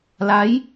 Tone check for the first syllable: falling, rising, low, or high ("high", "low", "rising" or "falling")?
rising